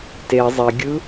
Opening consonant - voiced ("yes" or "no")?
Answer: no